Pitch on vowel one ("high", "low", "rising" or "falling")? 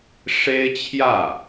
high